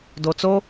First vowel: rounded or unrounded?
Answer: rounded